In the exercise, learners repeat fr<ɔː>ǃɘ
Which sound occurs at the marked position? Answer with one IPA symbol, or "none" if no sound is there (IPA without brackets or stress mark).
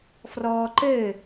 ɔː